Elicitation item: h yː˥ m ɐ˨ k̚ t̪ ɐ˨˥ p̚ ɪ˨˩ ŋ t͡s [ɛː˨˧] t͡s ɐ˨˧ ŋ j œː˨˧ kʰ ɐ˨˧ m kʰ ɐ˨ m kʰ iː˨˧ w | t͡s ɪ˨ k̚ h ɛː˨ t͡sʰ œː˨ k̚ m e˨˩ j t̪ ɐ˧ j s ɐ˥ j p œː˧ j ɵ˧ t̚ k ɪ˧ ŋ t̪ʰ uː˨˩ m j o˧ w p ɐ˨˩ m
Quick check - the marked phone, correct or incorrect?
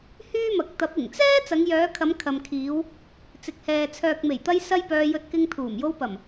incorrect